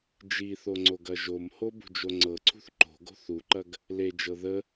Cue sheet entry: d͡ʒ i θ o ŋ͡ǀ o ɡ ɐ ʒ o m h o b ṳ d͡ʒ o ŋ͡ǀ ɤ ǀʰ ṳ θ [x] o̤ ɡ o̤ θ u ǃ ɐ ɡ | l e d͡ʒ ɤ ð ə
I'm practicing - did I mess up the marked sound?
yes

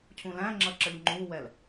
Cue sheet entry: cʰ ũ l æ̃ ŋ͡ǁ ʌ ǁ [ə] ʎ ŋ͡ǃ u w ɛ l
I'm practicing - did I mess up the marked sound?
no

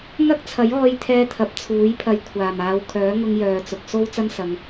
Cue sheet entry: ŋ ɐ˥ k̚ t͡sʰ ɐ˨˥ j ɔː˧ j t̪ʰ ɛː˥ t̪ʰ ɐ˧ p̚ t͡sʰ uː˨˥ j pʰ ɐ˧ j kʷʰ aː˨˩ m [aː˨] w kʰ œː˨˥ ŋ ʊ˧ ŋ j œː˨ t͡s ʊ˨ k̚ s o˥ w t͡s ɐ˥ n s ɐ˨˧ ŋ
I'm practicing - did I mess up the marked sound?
yes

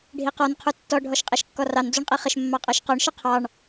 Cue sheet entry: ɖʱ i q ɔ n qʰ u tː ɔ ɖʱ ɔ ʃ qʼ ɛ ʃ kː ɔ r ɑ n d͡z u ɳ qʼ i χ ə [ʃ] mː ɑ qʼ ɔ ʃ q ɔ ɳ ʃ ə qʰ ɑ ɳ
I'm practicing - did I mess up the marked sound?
no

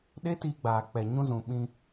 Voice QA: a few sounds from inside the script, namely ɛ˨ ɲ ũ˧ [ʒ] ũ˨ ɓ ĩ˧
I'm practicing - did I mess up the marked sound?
yes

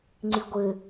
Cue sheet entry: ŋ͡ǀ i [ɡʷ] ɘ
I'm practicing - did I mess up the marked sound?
no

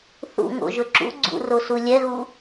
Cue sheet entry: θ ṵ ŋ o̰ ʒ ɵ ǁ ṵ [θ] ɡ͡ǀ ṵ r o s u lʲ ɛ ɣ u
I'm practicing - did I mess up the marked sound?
yes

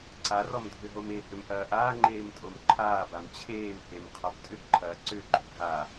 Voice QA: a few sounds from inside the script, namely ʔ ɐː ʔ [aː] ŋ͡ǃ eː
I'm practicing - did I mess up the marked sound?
no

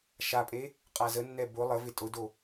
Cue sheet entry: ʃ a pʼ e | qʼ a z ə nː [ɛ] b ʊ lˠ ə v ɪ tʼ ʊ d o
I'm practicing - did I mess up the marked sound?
no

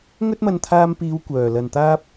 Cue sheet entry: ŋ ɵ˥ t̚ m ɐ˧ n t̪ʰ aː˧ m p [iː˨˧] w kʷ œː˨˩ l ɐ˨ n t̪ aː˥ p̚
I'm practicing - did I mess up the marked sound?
no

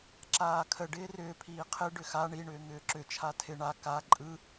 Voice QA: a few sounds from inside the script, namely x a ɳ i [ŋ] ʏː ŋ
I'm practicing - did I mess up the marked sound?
yes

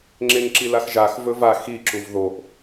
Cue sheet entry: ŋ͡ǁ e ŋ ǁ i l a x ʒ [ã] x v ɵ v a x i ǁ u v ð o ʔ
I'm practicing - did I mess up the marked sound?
yes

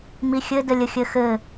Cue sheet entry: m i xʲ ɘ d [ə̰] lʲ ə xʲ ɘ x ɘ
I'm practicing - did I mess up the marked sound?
yes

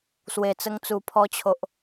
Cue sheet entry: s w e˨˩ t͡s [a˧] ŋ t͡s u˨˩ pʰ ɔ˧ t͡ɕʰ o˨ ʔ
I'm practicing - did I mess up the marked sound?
yes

